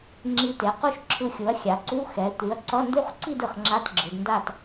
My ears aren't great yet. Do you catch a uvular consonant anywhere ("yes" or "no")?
yes